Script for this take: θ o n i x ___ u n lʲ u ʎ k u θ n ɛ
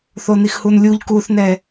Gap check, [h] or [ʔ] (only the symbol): h